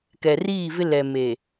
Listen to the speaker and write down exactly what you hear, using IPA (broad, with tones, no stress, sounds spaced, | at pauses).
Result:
k ɛ˨ r iː˦˨ v ɪ˦ l ɛ˨ m e˨